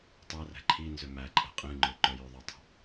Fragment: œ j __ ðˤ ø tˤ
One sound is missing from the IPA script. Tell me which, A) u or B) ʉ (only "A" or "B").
B